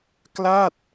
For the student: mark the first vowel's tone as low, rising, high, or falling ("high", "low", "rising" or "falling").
falling